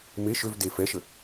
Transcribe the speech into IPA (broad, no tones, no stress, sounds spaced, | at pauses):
m e ʃ ø v d e f ɛ ʃ ə